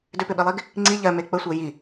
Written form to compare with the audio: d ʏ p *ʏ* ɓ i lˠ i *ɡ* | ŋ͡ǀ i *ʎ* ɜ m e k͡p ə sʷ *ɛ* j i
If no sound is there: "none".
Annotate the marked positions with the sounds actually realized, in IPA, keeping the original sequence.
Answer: ɪ, ɡ, ʎ, ɜ

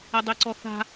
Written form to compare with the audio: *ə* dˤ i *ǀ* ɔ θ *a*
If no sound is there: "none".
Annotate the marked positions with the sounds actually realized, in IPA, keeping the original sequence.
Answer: ə, ǀ, a̤

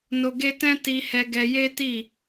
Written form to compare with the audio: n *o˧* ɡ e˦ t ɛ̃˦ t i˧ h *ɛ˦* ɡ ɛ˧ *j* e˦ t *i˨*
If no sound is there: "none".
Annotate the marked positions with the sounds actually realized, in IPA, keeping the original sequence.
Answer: o˧, ɛ˧, j, i˦˨

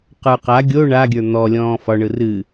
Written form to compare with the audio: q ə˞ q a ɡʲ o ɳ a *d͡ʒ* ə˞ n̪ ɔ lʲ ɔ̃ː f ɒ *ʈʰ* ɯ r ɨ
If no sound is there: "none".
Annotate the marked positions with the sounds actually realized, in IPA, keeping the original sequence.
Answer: ɡʲ, ɳ

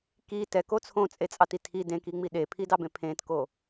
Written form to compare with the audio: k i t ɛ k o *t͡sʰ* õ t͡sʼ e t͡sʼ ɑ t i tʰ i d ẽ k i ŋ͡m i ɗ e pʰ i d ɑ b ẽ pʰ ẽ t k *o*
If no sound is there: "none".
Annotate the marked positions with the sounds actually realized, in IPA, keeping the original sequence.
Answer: t͡sʰ, o

